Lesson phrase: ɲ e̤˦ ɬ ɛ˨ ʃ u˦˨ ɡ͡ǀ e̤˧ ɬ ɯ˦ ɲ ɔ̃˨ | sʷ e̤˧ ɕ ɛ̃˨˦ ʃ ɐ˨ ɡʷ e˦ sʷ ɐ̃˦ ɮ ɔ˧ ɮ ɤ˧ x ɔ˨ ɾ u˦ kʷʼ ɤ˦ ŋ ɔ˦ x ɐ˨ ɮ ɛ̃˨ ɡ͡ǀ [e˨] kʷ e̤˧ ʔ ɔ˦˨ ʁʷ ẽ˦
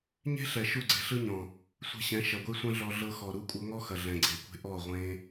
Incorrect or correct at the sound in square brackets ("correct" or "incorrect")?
correct